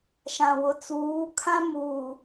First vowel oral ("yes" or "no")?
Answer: no